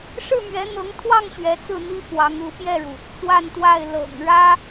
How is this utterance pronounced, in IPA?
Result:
ʂ ɻ̩˥˩ m ɥ ɛ˧˥ n̪ ɤ˧˥ ŋ t̪ʰ w ɑ˥˩ ŋ ɕ ɥ ɛ˧˥ t͡s ɹ̩˥˩ n̪ i˥ f w ɑ˧˥ ŋ u˧˥ p j ɛ˥˩ ɻ u˩ | t͡s w a˥˧ n t̪ w a˥˩ ɪ̯ l ɤ̰˨˩ ŋ ɻ ä˥

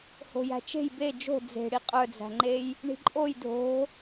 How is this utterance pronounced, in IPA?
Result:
h o̤ j æ̤ t͡ʃ e̤ j b e d͡ʒ o̤ d͡z e̤ ɽ i qʼ œ d͡z æ̤ ŋ͡ǃ e j | ɳ i̤ ǃʼ o j dʱ o̤

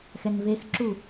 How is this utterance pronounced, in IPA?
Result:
x ɛ n v e x ǁ u

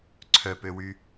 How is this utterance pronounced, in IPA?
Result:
ǀʰ œ p ø w y

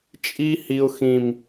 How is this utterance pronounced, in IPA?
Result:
t͡ʃʼ i˦ h i˦ ʊ̯ x ĩ˦ m

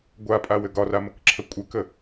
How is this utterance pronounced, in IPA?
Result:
ɡʷ a pʼ a w ɘ ɡ ɒ r a m ə k ǁʰ ə kʷʼ ɘ k ə

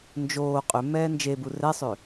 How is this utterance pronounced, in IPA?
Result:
n d͡ʒ oː qʼ ø m ɛː n d͡ʒ e b u r ɛ sˤ ø

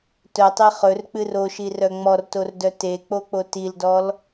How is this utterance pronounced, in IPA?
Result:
t œ tˤ e χ ɵ r k͡p ɨ r o ʃ i r œ ŋ͡m ɔ r t o r d œ t e k͡p o k͡p o t i l d ɔ l

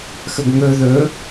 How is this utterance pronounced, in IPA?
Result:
x ə ɡ ŋ ɵ ð ɵ

